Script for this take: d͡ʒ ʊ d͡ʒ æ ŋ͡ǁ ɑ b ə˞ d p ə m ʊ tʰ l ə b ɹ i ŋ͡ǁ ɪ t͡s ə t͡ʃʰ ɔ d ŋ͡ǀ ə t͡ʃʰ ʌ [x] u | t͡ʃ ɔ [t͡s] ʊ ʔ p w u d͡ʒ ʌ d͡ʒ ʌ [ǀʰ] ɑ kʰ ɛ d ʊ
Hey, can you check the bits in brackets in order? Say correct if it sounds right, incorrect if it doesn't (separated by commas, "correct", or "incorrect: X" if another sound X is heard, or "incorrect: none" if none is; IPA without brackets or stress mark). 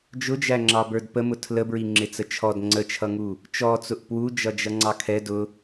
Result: incorrect: ŋ, correct, incorrect: ŋ͡ǀ